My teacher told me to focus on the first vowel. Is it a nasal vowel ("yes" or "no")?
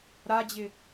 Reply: no